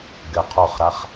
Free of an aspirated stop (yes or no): no